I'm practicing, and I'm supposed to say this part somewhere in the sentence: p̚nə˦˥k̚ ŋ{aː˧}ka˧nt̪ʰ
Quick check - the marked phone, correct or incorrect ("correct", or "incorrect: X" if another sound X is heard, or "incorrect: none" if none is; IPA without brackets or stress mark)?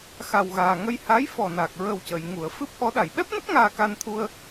correct